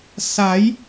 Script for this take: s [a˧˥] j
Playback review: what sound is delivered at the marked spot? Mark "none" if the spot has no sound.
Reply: a˩˧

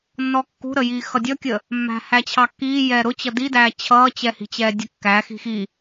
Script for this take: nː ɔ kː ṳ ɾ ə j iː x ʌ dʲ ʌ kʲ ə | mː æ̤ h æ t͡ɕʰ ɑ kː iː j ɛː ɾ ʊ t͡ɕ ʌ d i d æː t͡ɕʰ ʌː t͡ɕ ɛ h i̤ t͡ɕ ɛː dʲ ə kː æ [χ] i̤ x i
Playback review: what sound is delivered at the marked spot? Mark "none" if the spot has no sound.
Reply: x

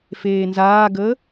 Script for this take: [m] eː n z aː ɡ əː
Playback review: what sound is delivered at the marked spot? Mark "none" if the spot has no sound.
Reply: f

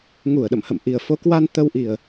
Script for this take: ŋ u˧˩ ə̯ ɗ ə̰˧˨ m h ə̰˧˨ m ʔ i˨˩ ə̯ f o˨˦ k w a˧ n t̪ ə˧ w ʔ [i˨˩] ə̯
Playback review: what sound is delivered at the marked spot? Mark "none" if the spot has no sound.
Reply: i˨˩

